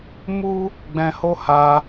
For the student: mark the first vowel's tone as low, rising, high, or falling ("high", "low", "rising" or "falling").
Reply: high